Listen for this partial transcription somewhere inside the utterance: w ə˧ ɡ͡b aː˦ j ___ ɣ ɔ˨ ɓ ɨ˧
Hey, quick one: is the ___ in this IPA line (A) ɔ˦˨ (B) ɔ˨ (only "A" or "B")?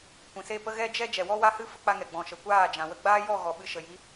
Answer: A